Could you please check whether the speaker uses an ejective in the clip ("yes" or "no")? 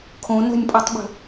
yes